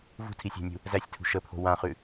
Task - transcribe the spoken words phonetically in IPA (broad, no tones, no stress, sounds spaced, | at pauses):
v ṳ tʰ i sʲ æ̤ nʲ ṳ | z æ sʲ tʰ ṳ ʃ ə pʰ o̤ w ã χ ʉ